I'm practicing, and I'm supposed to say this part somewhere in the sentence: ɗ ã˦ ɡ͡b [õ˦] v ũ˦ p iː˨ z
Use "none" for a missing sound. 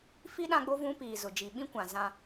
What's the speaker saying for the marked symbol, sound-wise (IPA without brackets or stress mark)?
o˦